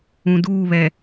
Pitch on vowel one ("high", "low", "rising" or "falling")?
low